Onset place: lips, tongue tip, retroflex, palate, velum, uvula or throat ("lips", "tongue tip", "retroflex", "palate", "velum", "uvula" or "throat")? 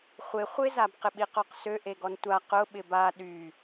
uvula